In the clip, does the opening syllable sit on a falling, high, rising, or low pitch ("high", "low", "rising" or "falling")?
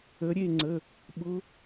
rising